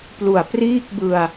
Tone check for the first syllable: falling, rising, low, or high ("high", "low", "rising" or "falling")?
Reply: low